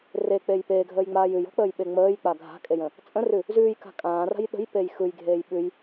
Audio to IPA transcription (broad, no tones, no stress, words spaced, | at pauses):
rek͡pej peːɡʱəːjŋ͡maːj ʉjɔ̤k͡pəːjɓe ŋ͡məːjk͡pa ɡʱa̤kʼejə̃ | t͡sʼə̃rʉ | zʉːjka̤ kʼãːra̤j ɗə̤jpej xɯjɡʱeːj ɓʉj